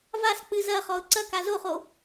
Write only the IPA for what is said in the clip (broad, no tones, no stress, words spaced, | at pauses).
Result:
vask͡pɨ zɐχɔʊ̯ ǀɐka zoχo